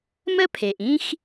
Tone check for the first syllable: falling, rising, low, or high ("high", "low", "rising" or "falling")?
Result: high